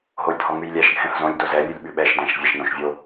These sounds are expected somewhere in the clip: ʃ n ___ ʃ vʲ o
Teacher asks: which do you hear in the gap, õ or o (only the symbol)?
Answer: õ